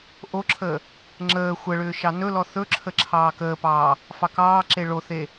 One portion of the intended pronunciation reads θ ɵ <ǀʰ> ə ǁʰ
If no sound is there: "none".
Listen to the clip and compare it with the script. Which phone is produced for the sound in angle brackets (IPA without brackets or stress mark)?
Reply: ǁʰ